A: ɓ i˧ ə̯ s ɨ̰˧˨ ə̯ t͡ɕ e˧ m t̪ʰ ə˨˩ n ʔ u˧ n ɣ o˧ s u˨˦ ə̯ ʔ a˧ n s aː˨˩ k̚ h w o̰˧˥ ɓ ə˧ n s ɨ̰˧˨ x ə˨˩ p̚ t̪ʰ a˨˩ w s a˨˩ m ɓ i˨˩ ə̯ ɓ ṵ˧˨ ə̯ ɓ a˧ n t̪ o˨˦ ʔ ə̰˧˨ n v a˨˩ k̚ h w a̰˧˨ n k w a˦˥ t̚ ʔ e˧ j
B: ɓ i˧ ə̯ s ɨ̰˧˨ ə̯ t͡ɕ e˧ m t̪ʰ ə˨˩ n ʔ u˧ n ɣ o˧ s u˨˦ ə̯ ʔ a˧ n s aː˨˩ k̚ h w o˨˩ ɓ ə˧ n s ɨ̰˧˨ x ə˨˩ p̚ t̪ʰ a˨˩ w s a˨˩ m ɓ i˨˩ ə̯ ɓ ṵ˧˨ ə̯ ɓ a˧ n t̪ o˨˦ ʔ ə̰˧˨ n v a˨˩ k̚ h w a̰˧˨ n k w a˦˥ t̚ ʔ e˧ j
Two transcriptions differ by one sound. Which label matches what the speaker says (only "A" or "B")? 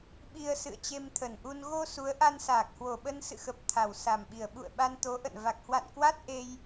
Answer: B